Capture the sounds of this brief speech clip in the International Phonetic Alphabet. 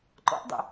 ǃ ɔ̰ ʔ dˤ æ̰

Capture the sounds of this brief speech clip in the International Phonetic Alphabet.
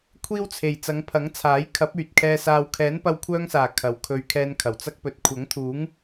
kʷʰ iː˥ w t͡sʰ e˨ j t͡s ɐ˨˧ ŋ pʰ ɐ˨˥ ŋ t͡sʰ aː˨˥ j kʰ ɐ˨˥ p̚ yː˨ t̚ kʰ ɛː˧ s aː˧ w kʰ ɛː˨˥ n p ɐ˧ w kʷʰ œː˧ ŋ s aː˨˩ kʰ ɐ˨˧ w kʰ ɵ˧ ɥ kʰ ɛː˧ n kʰ ɐ˨˩ w t͡s ɐ˧ k̚ p ɵ˨ t̚ kʷʰ ɐ˨˥ ŋ t̪ʰ uː˨˥ ŋ

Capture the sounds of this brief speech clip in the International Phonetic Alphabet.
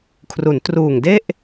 kʰ r u˩˦ n t r uː˨˩ ŋ d e˥˩ ʔ

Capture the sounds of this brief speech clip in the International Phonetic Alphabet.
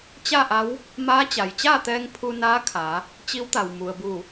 t͡ɕ a˥˨ ʔ a˧˥ w | m aː˧˥ t͡ɕ a˩ j t͡ɕ aː˥˨ t̪ ɛː˧ ŋ pʰ u˧ n aː˧˥ kʰ a˩˧ | t͡ɕ i˧˥ w t̪ a˩ w m u˩ ə̯ b u˧˩

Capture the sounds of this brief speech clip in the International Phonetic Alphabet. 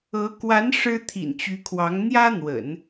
ɤ˧˥ k w a˧˥ n ʂ ɻ̩˥ t̪ʰ ḭ˨˩ n t͡ɕ y˧˥ kʰ w ɑ˧˥ ŋ n̪ j ä˥ n̪ w ə̰˨˩˦ n

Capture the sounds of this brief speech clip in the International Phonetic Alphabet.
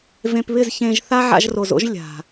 v ẽ˧ p β ɪ˦˨ z ç ẽ˧ ʒ θ a˦ ʕ a̰˧ ʒ r o˨ z o̰˦ ʒ lʲ a̤˨

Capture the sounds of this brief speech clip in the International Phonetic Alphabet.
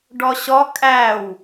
ɖ ɔ ɕ ɔ kʼ æ w

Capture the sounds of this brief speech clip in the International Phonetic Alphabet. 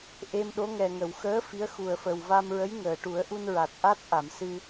ʔ e˧ m ɗ o˧˥ ŋ ɛ˨˩ ŋ ə˨˩˨ w x əː˧˥ f i˧˥ ə̯ x u˨˩ ə̯ f ə˨˩ w v a˧ m ɹ ə˧˥ j ŋ əː˨˩˨ ʈ u˨˩˦ ə̯ ʔ u˧ n ɹ a˨˩ t̚ ʔ a˦˥ t̚ ʔ a˨˩˨ m s ɨ˧

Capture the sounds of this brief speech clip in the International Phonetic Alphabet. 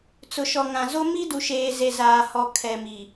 t͡s ʊ˨ ʃ ɔ˨ ŋ ã˨ z o˦ m i˦ d u˨ ʃ eː˨ z e˨ z aː˨ h ɔ˨ kʰ ɛ˨ m i˨

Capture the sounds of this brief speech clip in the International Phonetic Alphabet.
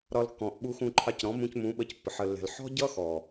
ɾ ɒ˧ l kː ɔ̃˨ ʔ ɓ u˧ x ũ˧ ǃʰ ɑ˧ c ɾ ɔ̃˨˦ m ũ˧ c m ũ˨˦ ɓ ə˧ c pː ə˨ ħ ə˨ lː ɛ̤˨ l ħ ɔ̤˦ ɟ ʌ˦ x ɔ˨

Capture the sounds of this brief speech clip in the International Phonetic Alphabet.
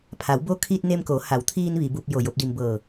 pʰ a˩˧ w b oː˧˥ kʰ iː˧ t̚ n eː˧ m k oː˩˧ h a˩˧ w t̪ʰ iː˧ n ʋ iː˩˧ b uː˧ p̚ j o˧˩ j o˧˥ p̚ d i˧ m b ɤː˧˩

